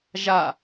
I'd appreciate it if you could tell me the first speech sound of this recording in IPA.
ʒ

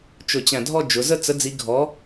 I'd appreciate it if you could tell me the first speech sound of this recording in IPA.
t͡ʃ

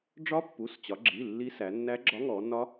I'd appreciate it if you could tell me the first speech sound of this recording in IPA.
ɖ͡ʐ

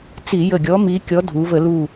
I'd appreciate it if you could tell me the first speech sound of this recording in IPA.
t͡s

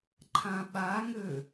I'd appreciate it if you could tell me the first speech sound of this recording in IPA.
ǃʰ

